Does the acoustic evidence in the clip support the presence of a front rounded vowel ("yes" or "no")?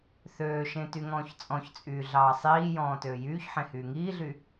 yes